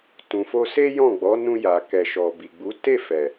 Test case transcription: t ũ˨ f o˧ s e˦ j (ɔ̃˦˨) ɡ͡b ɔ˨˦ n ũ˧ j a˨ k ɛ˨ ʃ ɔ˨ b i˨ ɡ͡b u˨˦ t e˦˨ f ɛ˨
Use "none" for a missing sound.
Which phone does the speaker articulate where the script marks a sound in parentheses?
ɔ̃˦˨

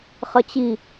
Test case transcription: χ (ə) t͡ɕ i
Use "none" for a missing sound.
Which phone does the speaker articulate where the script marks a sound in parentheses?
ə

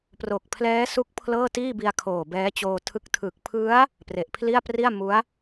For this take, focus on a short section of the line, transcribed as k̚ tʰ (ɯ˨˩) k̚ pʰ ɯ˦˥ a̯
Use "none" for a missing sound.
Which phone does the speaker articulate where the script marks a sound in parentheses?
ɯ˨˩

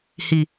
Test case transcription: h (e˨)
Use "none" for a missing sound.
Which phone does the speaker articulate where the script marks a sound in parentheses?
i˨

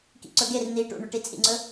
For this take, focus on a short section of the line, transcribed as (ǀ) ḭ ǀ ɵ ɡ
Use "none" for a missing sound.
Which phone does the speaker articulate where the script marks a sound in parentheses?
k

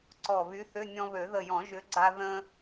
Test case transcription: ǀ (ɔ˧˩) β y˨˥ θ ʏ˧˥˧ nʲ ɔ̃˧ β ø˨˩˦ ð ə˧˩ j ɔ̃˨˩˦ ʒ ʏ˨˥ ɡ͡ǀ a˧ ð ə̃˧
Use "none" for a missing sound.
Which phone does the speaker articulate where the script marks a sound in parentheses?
ɔ˧˩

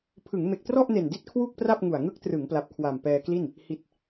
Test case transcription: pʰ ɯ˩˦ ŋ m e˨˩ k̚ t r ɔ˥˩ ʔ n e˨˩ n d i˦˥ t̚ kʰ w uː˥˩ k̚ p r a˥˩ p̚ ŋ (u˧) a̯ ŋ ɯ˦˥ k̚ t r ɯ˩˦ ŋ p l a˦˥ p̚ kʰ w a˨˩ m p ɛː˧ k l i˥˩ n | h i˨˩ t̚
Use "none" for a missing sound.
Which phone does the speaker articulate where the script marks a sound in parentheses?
u˨˩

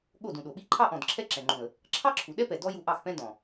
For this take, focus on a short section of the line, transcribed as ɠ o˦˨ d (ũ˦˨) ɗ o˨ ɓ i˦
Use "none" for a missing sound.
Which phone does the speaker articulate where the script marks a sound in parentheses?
ũ˨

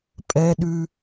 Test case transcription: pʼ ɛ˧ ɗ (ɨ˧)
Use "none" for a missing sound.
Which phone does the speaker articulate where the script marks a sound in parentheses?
ʉ˧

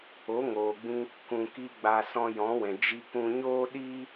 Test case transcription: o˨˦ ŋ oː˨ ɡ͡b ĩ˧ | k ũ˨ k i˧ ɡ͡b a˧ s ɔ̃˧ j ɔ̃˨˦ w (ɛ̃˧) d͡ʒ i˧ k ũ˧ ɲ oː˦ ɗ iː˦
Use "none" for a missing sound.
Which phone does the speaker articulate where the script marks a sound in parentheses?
ɛ̃˨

